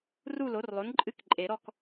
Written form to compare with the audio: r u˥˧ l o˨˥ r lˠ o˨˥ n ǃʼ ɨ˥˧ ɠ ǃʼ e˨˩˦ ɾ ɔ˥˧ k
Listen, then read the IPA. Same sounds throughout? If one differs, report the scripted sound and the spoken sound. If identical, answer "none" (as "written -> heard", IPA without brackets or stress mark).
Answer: ɠ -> k